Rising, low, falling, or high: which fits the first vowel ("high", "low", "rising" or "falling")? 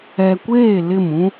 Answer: low